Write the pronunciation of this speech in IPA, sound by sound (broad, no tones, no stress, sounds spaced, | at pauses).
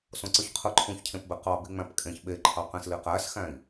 s õ ǀ ɯ ç qʰ ɯ ǃʰ ũ ç cʰ ẽ p b e q ɑ b i ŋ͡m æ̃ p kʼ ẽ ç ɓ e ǃʰ ɑ q ẽ s l i q æ s x æ̃ i̯